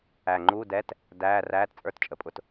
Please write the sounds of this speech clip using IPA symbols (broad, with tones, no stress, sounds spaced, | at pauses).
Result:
æ˨˩ ŋ͡ǃ uː˧˥˧ d ɛ˧˥˧ t | d æː˧˥˧ r æː˧˥˧ t t͡sʼ ə˞˧˥˧ t t͡ʃʼ ə˨˩ pʼ ʊ˨˩ t